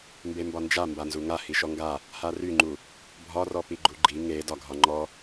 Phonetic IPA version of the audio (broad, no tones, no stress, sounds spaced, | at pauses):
m b e m b ɒ n d͡ʒ a m b a n z u ŋ a h i ʃ ɔ ŋ ɡ a | h a r y ŋ͡ǃ u | bʱ ɒ r ɔ p i ɡ͡ǃ u ɡ͡ǃ i ŋ e d ɒ ɡʱ ɒ ŋ͡ǃ ɔ